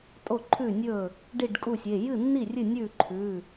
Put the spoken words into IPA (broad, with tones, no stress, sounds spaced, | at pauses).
tʼ o˥˩ ǃʰ ʉ˥˩ nʲ ɵ˥˩ | ɖ i˥˩ ɖ kʼ u˥˩ sʲ e˩˧˩ j ɨ˥˩ nː i˥˩ rʲ ɨ˥˩ nʲ ʉ˥˩ ǃʰ ʉ˩˧˩